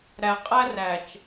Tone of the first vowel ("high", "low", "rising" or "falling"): low